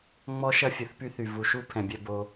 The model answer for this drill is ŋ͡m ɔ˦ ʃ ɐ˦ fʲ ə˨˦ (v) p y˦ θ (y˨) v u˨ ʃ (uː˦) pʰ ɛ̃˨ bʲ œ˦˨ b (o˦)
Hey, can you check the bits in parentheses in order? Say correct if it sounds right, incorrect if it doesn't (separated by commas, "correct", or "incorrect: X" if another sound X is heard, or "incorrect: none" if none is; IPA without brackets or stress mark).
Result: incorrect: θ, correct, incorrect: u˦, correct